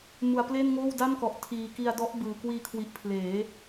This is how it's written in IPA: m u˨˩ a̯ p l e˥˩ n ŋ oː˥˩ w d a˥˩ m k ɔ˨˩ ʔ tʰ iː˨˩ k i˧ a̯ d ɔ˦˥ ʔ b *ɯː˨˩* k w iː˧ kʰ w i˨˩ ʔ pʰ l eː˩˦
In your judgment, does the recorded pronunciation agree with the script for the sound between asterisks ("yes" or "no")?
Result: yes